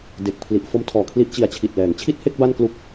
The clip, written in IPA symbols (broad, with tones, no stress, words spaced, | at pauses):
de˨˩k̚pʰli˨˩ʔ fo˦˥mtʰɔː˨˩kʰli˦˥ʔ t͡ɕi˨˩a̯t͡ɕʰi˨˩t̚lɛː˩˦ŋ t͡ɕʰi˥˩t̚he˥˩k̚ ba˥˩n klu˥˩k̚